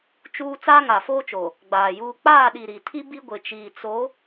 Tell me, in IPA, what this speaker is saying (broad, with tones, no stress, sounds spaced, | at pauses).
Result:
t͡ʃ uː˦ t͡s aː˦ ŋ a˨ f oː˦ t͡ʃ o˨ | ɡ͡b aː˨ j uː˦ k͡p aː˦˨ ɗ i˨ ɾ i˨ tʰ i˦ b i˦ ɡʷ ɪ˨ t͡ʃ iː˨ t͡s o˨˦